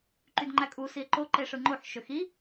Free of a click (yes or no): no